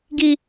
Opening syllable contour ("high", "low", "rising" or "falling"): high